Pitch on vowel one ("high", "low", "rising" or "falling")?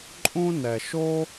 high